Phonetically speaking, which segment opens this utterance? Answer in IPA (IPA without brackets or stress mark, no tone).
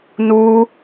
n